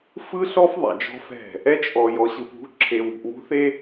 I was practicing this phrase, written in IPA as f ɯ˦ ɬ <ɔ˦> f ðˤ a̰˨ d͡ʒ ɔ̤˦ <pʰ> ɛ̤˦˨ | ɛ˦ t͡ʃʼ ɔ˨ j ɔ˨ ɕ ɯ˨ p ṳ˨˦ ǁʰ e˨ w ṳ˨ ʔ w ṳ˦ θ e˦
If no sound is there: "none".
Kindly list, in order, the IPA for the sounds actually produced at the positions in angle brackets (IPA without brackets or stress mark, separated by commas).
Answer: ɔ˦, f